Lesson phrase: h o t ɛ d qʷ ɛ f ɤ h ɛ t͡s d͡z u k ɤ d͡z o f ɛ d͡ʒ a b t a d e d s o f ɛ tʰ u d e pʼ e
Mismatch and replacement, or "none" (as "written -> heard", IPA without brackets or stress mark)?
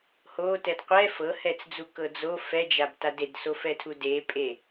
none